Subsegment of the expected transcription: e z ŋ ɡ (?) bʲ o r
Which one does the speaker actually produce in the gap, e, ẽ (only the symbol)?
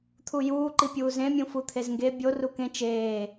e